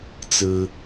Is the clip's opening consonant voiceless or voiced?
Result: voiceless